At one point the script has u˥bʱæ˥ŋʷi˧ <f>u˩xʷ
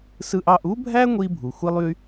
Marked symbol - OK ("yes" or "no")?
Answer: no